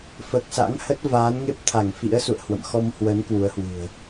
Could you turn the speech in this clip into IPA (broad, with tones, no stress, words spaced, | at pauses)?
fəː˨˩k̚sa̰˧˥ŋhə˦˥t̚ vaː˨˦nŋe˦˥p̚t̪ʰa˧˩ŋfḭ˧˥ə̯ sṵ˧˨ə̯hwə̰˧˨m xɔ˧mhwə˨˦n kwu˨˦ə̯hwɨ̤˨˩ə̯